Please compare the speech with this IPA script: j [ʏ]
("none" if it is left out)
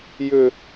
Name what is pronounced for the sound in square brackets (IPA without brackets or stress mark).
ʏ